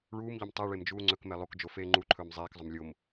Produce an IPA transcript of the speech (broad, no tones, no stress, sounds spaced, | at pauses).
ɭ uː m ʎ o m tˤ ɛ ɭ e m d͡ʒ uː ŋ͡ǀ ɵ k m ɛ lˠ o k d͡ʒ o f eː ŋ͡ǃ u ǃʰ ɵː m zˤ eː k zˤ ɵ m lʲ o m